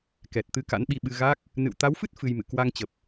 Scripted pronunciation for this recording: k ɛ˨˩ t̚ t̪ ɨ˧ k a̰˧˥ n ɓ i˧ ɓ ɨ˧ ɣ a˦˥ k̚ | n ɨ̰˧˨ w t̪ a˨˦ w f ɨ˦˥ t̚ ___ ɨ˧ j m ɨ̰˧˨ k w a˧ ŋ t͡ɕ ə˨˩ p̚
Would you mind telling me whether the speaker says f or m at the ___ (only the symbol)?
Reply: f